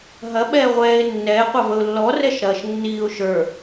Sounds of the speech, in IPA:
ɦ ɐ ɓ ɛː ʁʷ ɛː ɪ̯ nː ɛː qʷ ɐ v ə ʊ̯ lː ɔ r ɛ ʃ ɾ ɐː ʃ nː iː ʊ̯ ʃ ə˞

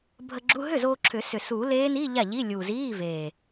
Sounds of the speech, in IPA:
bʱ ə˧ ɡ͡ǁ u˧˥˧ ɦ ʏ˥˩ z oː˧ ǁʰ ʏ˨˩˦ s ʏ˨˩ s uː˨˩˦ l eː˧˥ n iː˧˥˧ ʎ a˥˩ ʎ i˧˥˧ lʲ uː˨˩ z iː˧˥˧ v eː˨˩

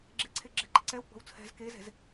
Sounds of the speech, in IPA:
ɡ͡ǁ e ǀʰ e ɡ͡ǁ ɛ̤ ǃ ə ǀ ɛ w ɡ͡b ɔ̤ w t͡sʰ ɛ̤ z k e z ɛ̤ z

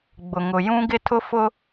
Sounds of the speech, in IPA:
ɡ͡b ʊ˨ ŋ ʊ˨ j ũ˦ ɡ ɪ˦ tʰ ʊ˦ f ʊ˦

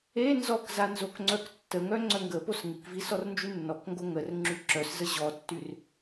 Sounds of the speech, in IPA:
e n z ɔ k z a n z o k ŋ͡ǀ œ k tː ə ŋ œ ŋ͡ǀ œ ŋ ɡ ə p o s ŋ i k v i s ɔ r n d͡ʒ y nː ɔ k ŋ ɡ o ŋ ə r ŋ͡ǁ y ǁ œ s z ə ʑ ɔ tː y r

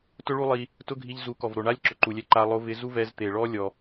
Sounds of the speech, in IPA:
t ʊ˦ ɭ u˦ lˠ i˧ | t ʊ˦ ɡʱ i˧ ʎ z u˨˦ k ɔ˨ v ɾ o˨ ɳ a˦ lʲ ǁ ʊ˨ ǃ u˨ lʲ ɛ˧ ǃ a˧ lˠ o˧ v ɪ˧ z u˦ v ɛ˧ z t̪ e˨ ɭ ɔ˦ lʲ ɔ˧

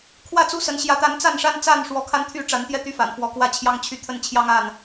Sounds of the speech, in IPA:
kʰ w ä˥˨ t͡s u˦ s ə˨˦ n ɕ j ä˨˦ t̪ a˨˦ n t͡s a˥˨ n ʂ a˦ n t͡s a˥˨ n ʂ w ɔ˨˦ kʰ a˦ n t̪ʰ y˥˨ ʈ͡ʂ a˨˦ n t̪ j ɛ˦ t̪ y˦ f a̰˨˩ n f w ɔ˨˦ k w ä˥˨ t͡ɕʰ j ɑ˦ ŋ t͡ɕʰ y˥˨ t̪ʰ ə˥˨ n t͡ɕʰ j ɑ˦ ŋ a˥˨ n

